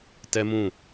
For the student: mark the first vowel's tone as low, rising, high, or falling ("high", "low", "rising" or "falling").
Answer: high